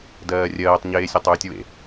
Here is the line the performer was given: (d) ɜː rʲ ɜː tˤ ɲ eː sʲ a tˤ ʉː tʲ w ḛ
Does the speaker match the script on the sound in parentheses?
yes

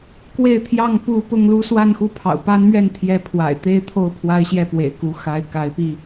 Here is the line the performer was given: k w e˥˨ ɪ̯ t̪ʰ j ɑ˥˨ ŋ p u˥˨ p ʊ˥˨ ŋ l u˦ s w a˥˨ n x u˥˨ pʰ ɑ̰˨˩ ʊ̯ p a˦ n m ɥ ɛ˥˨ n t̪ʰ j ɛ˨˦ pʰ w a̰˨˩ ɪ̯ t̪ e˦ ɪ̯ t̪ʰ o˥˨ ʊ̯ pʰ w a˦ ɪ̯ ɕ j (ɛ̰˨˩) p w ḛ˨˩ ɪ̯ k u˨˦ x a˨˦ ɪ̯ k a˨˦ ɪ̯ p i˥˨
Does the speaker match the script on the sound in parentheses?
no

